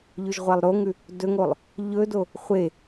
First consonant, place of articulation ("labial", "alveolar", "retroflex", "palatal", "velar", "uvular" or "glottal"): palatal